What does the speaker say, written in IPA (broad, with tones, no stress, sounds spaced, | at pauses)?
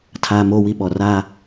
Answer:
tʰ aː˦ m oː˦ w i˦ ɓ ɔ˨ r aː˦